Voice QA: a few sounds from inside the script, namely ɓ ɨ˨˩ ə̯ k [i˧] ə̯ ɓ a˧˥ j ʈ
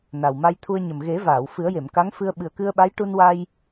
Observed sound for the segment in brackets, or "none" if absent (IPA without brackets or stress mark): ɨ˧